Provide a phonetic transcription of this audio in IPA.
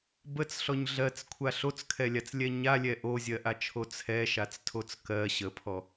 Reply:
b ə t͡s ɬ ɔ ɲ ɮ ɜ t͡s kʷʰ a ɬ o t͡s kʰ ɛ lʲ a t͡s lʲ ɛ ɲ a lʲ ɛ ʔ o zʲ ɜ ʔ a t͡ʃʰ o t͡sʰ ɛ ʃ a t͡s tʰ o t͡s k ɜ ɕ ə pʰ ɔ

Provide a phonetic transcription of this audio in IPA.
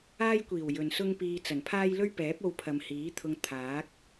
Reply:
aː˥ j kʷ iː˨˩ w j ɵ˨ n s ʊ˥ ŋ p iː˧ t͡s ɐ˨˩ n pʰ aː˥ j l ɵ˥ ɥ p ɛː˨˥ p̚ o˧ w pʰ ɐ˨ m h iː˨˥ t̪ʰ ʊ˧ ŋ t̪ʰ aː˨˥ k̚

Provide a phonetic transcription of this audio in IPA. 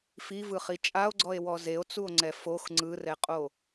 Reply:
f i v ɯ χ i t͡ʃʼ a o̯ ɡ͡ǀ ɔ e̯ w ɔ z e o̯ t͡s u o̯ ŋ͡ǀ ɛ f o x ŋ͡ǀ ɯ r ɛ qʼ o

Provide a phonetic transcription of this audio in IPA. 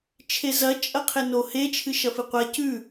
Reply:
t͡ʃʰ e z ɐ t͡ʃʼ ɐ qʰ e n o h e t͡ʃʰ ɨ ʃ ɐ f ɨ qʷ a c ʉ

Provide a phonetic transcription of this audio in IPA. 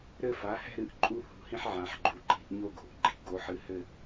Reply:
ɾ ɘ˥˧ f a˩˥ h ɛ̤˥˧ ɾ ɨ˩˥ ʔ ǃʼ u˥ h ṳ˧˩˧ h ĩ˥ ħ ʕ ã˩˧ ħ ɡ͡ǃ u˩˧ ǃ i̤˧˩˧ ʔ ɲ o˥˧ ɡ o̤˩˧˩ ʔ ɡ͡ǃ i̤˧˩˧ ɡ o˩˥ ħ ɨ˩˧˩ h ɘ˥˧

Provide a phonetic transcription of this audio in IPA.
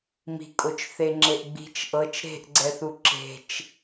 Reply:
m i̤ kʼ o t͡ʃ θ e ŋ͡ǁ e ʔ ɡ͡b i̤ t͡ʃ ʔ ɤ t͡ʃ ɾ e̤ ʔ ɡ͡ǀ ɛ θ u ǁ e̤ t͡ʃ

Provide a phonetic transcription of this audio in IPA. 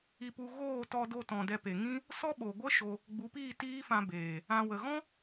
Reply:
i˧ p u˧ ɣ oː˦˨ t ɔ˧ d o˧ t ɔ̃˨ d ɛ˧ p e˨ ŋ ĩ˦ | s ɔ˦ ɓ o˨ ɡʷ ə˦ ʃ o˧ | ɡ͡b u˨˦ p iː˦˨ t iː˦ f ã˧ b eː˨ | ã˧ w ə˨ ɣ ɔ̃˦

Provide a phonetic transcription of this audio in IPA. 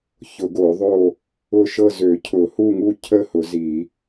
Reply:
ç ʊ˨˩˦ ɡ o˨˩˦ ðˤ o˥˨ | ʊ˥˨ ʃ ɤ˥˨ z ø˨˩˦ cʰ ʊ˨˩˦ h u˥˨ ŋ u˥˨ cʰ ə˥˨ h ʊ˨˩˦ z i˨˩˦

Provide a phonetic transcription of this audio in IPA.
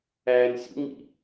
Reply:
æː n sʲ ṵ ŋ͡m ḭ

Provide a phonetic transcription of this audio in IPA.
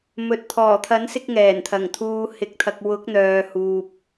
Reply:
m ɵ˨ t̚ t̪ʰ ɔː˨˩ t̪ʰ ɐ˨˥ n s ɪ˧ k̚ ŋ ɛː˨˩ n t̪ʰ ɐ˨˩ ŋ t̪ʰ uː˧ h ɪ˧ k̚ t̪ʰ ɐ˧ k̚ w ʊ˨˥ k̚ n̪ œː˨ h uː˨ p̚

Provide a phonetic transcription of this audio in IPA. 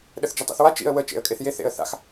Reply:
ɗ ə θ d͡ʒ ɐ tˤ ḛ θ w a t͡ʃ ḭ ə̯ w ə t͡ʃ ḛ ə̯ kʼ e θ j e θ ḛ ə̯ θ a̰ x

